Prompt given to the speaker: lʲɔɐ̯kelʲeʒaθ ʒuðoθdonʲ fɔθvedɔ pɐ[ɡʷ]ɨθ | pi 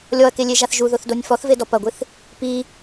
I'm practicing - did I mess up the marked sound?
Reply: no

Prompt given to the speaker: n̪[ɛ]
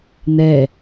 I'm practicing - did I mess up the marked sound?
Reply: no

